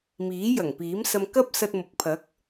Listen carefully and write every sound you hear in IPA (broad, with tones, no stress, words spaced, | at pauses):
miː˨˥jɐ˨˩ŋpiː˨˥msɐ˧m kɐ˥p̚sɐ˧t̚ mʊ˨k̚pʰɐ˨˥k̚